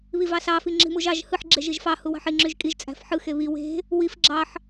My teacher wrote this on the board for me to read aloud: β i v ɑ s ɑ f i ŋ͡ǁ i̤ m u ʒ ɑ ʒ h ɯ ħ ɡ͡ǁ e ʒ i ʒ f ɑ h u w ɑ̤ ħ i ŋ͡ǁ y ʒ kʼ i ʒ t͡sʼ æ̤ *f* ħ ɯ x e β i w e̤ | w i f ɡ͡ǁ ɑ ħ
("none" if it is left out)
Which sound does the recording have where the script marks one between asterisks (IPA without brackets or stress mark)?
f